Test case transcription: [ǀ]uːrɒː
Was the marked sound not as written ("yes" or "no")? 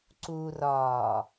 no